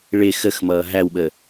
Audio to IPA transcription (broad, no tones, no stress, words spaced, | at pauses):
ɭɪ xəxmʌː ɦæwɓə